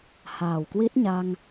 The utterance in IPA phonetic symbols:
haː˨˩wkwi˦˥t̚ɲa˧ŋ

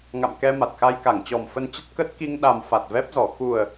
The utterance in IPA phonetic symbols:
ŋa̰˧˨mkɛ˧ma˨˩t̚ xa˧jka˧˩ŋt͡ɕɔ˨˩m fə˧n t͡ɕə˦˥t̚kə˦˥t̚ ki˧ŋɗa˨˩m fa˨˩t̚vɛ˦˥p̚zɔ˧˩ xu˨˩ə̯

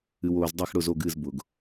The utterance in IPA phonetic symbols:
ɨ˨woː˨zdˤɛ˦˨xɽʊ˦˨z o˦˨ɡɨ˦˨z bʊ˨ɡ

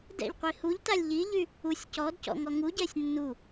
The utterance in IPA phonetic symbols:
dɛ̰ʎqʷi huʎtalʲ ʎiʎy | usʲ cɔdcɔ̰ ŋɔŋuɟɛsʲ nːu

